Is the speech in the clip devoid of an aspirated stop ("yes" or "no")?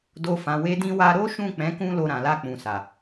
yes